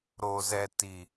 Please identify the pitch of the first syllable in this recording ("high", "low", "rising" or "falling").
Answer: low